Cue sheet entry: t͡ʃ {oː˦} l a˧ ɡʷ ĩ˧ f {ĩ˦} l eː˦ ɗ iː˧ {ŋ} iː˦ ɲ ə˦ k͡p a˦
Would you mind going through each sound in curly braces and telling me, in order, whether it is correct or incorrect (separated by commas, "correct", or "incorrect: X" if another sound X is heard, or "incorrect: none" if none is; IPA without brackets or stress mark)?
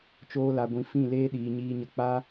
correct, incorrect: ĩ˦˨, incorrect: ɲ